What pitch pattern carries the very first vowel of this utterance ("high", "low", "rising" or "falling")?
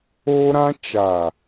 high